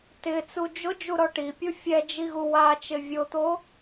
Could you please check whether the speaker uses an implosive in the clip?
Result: no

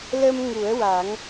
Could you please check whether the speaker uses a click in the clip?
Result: no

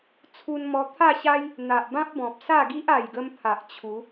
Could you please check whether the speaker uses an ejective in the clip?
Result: no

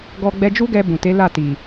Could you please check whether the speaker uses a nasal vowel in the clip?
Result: yes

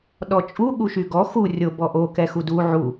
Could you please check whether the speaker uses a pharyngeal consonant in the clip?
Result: yes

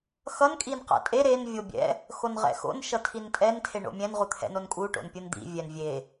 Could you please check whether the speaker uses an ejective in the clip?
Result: yes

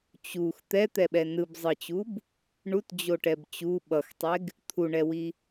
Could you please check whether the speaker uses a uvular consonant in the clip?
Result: no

